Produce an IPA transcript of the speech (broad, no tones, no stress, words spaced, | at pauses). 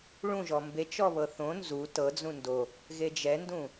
ɭũʒɔ mbet͡ʃɔ βɤθõ nzu tɤd͡zũ ndo | ɣed͡ʒɛndũ